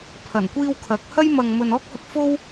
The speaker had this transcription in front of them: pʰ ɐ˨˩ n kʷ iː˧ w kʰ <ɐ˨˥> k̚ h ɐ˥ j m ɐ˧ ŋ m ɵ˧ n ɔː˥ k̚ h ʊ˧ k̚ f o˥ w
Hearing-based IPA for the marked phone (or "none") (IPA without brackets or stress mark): ɐ˨˥